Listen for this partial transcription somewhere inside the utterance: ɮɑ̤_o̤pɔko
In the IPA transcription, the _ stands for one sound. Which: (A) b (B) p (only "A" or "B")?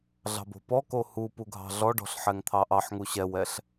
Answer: A